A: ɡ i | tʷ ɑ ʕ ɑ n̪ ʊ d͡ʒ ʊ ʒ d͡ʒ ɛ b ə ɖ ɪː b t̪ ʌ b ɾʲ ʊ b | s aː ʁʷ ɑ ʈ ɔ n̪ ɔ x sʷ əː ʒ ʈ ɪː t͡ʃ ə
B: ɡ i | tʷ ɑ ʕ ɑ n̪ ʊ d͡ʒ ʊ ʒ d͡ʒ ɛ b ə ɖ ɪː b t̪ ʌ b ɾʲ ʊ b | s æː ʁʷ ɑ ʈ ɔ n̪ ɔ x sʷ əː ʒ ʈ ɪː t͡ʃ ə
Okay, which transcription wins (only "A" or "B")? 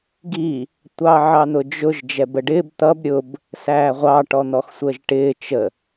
B